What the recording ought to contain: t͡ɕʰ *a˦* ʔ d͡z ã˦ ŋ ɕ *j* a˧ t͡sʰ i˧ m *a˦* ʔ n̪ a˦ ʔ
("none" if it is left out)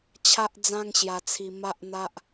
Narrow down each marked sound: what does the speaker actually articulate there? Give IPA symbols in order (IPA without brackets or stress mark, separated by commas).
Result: a˦, j, a˦